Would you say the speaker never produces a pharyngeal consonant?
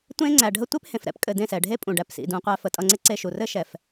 yes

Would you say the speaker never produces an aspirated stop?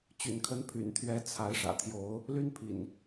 no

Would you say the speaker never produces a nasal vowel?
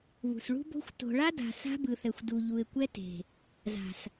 yes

